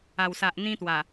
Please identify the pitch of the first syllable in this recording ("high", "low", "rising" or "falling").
low